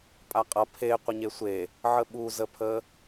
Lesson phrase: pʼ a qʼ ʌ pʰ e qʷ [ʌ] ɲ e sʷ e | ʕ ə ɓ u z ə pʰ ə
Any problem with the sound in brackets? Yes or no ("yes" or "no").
yes